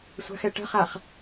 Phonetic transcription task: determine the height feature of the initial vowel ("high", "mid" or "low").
low